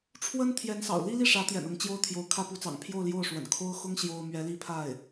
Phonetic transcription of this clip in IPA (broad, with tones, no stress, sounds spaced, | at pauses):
ʈ͡ʂʰ w ə˥ n t̪ʰ j ɛ˧˥ n s ɑ̰˨˩ ʊ̯ l i˥ l i˥˩ ʂ ä˧˥ t̪ j ɛ̰˨˩ n ʊ˧˥ ŋ t͡ɕ j o˥˩ ʊ̯ t̪ʰ j o˧˥ ʊ̯ kʰ ä˥ p u˧˥ t͡s ɑ̰˨˩ ŋ pʰ j o˥˧ ʊ̯ l j o˥˩ ʊ̯ ʂ w ə̰˨˩ n kʰ o˥ ʊ̯ x ʊ˥ ŋ ɕ j o˥ ʊ̯ m ɥ ɛ˧˥ l i˥ pʰ a˥˩ ɪ̯